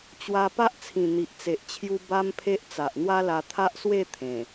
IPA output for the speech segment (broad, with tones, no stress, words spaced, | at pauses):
t͡ɕwa˧ pa˦ʔt͡sʰĩ˨˩ n̪i˨ʔt͡se˨ʔt͡ɕʰju˦ ba˦mpʰe˦ʔ t͡sa˨ʔn̪wa˦la˧ t̪ʰa˦ʔswe˥˧ t̪ʰẽ˨˩